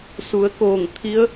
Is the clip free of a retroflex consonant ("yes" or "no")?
yes